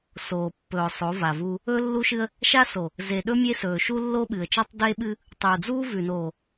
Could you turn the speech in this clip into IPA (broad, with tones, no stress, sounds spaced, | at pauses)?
s oː˨ pː ɵː˨ ʊ̯ sˤ o˨˦ v a˨ v uː˦ | ɵː˦ lː u˦ ʃ ɨ˦ ə̯ | ʃ a˦ s o˨ | z e˨ ɗ ɵ˦ mʲ e˦ s ɵː˨ ʃ u˦ lː o˦ ɓ ɨ˨ ə̯ t͡ʃ ɐː˦ tˤ d eː˦ ɓ ɨ˦ | tˤ uː˨ d͡z uː˦ v ʉ˨ n oː˨